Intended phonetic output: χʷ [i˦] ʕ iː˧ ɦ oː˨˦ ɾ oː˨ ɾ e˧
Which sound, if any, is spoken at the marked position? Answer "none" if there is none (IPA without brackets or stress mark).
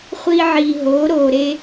iː˦